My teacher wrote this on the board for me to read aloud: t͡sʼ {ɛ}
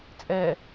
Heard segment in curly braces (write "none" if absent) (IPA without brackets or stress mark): ɛ